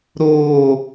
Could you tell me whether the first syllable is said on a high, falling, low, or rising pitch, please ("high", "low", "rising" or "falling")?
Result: high